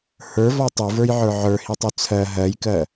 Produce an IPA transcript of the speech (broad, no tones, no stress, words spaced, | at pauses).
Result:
hə˞vɔ tˤuvə˞jʕə˞ ʕə˞hitˤu t͡sʰɜ ɦɜjkɜ